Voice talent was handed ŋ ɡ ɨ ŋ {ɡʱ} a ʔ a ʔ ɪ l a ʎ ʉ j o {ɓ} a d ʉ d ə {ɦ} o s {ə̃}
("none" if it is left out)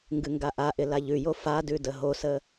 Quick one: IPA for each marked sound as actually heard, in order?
ɡ, f, ɦ, ə

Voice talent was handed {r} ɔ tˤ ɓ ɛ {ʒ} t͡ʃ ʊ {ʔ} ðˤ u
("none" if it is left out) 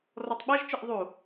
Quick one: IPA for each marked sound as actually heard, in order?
r, ʒ, ʔ

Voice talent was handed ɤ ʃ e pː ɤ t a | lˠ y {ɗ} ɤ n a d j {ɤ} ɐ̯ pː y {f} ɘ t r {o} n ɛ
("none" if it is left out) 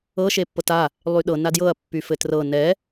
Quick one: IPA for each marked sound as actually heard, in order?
ɗ, ɤ, f, ɤ

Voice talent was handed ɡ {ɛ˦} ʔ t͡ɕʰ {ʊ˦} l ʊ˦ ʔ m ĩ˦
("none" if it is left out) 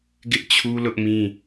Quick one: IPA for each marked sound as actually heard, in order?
ɪ˦, u˦

